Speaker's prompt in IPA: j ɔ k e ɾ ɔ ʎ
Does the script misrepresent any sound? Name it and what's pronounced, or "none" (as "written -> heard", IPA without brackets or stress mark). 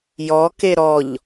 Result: none